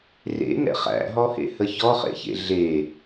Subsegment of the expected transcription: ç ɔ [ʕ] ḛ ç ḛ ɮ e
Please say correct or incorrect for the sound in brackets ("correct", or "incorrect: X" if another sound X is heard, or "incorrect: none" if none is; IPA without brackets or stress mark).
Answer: incorrect: χ